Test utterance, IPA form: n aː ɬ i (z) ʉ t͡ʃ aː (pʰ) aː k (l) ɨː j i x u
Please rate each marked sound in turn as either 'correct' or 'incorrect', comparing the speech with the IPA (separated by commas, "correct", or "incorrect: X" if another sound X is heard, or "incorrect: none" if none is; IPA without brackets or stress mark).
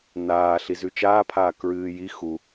correct, correct, incorrect: ɹ